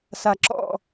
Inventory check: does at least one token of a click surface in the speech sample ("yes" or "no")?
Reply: yes